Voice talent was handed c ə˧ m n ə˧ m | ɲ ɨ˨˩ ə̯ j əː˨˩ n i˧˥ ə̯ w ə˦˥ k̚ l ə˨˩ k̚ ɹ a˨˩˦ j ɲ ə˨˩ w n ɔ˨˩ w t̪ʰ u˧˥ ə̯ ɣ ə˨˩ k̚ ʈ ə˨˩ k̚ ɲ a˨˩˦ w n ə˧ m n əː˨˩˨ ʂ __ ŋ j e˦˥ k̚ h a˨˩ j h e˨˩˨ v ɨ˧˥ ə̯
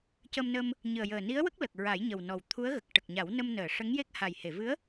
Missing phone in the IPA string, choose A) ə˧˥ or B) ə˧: A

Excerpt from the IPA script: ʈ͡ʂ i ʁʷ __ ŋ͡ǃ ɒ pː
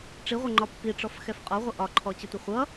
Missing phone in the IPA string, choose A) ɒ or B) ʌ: B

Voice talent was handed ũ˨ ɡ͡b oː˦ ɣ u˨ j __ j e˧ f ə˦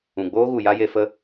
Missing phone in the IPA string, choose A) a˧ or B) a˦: B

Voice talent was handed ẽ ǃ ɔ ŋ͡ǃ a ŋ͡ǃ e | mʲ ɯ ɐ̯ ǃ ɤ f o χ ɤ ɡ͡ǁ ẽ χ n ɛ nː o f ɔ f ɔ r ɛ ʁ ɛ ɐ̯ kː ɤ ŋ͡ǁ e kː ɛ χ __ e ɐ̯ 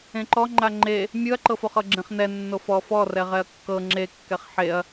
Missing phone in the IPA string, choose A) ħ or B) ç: A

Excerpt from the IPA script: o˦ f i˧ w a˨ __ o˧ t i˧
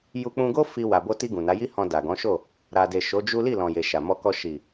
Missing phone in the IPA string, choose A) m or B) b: B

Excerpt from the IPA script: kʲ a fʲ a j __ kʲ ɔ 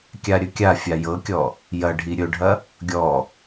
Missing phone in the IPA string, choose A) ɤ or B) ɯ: A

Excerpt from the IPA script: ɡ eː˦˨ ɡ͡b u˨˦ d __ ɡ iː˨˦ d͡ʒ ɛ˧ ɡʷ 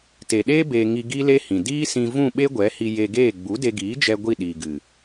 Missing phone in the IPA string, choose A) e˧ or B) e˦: A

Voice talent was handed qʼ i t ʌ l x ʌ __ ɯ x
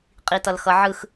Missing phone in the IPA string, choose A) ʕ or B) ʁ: A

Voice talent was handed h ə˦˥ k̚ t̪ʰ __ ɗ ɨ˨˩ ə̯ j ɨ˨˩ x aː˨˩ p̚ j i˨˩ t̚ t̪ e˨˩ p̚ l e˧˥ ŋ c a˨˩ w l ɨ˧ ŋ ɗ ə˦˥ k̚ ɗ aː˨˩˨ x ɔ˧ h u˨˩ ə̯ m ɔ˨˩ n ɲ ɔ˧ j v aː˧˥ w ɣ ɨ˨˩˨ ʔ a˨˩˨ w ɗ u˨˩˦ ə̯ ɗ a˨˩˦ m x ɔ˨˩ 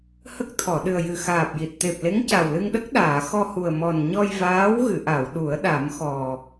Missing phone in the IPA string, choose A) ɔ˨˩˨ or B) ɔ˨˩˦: A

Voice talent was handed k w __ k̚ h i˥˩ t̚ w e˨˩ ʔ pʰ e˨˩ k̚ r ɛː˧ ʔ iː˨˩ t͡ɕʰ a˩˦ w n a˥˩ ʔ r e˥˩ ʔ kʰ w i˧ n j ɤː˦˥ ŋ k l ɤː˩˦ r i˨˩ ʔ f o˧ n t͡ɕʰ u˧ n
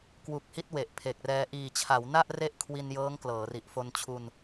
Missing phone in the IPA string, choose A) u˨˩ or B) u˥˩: A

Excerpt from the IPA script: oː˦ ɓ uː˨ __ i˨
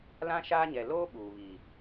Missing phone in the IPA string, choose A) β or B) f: A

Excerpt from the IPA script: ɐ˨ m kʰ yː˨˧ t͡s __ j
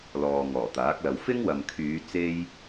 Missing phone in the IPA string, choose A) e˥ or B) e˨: A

